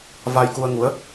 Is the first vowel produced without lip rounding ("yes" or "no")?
yes